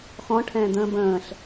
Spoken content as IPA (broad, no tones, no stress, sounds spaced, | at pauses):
x ɔ̃ ʈʰ ɛ̃ː d̪ ə̃ː b ə̃ː ɬ